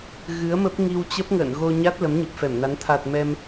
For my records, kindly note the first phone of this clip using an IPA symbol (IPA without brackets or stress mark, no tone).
ɣ